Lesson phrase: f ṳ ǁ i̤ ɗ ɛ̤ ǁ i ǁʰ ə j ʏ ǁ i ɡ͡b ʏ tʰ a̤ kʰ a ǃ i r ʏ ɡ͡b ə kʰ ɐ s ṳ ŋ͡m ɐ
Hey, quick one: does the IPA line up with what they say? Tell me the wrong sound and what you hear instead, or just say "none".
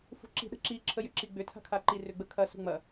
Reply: ɛ̤ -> ə̤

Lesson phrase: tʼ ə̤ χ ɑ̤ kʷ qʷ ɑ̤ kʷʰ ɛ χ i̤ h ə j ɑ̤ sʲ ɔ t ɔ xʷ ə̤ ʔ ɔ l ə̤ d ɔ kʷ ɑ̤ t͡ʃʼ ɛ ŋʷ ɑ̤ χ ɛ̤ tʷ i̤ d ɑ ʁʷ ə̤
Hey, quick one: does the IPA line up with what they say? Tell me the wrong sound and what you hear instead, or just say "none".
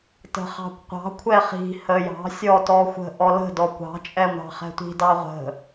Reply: tʼ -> t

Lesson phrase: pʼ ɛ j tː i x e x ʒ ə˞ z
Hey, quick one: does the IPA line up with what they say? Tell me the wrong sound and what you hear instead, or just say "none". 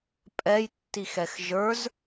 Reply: e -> ɛ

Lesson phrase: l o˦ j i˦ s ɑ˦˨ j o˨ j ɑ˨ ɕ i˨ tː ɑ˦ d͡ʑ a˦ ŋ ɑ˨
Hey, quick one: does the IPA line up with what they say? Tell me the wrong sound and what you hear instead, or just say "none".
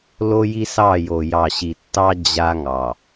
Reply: none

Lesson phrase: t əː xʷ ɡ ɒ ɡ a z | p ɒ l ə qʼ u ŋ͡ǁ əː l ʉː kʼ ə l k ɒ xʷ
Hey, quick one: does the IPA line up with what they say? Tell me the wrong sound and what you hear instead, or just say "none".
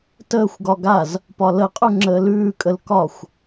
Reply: none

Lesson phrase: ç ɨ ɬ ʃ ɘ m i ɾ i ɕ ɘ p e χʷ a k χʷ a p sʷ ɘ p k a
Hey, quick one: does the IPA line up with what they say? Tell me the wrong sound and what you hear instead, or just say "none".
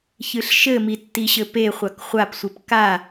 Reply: ɾ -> tː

